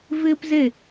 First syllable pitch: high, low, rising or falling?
high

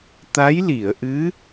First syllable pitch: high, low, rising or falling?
rising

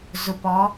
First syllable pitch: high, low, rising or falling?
low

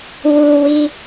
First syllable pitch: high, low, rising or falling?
high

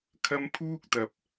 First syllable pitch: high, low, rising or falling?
high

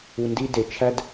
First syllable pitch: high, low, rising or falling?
low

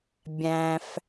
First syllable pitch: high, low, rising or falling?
low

